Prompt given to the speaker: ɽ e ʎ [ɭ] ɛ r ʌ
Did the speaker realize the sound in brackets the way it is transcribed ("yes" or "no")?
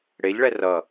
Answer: yes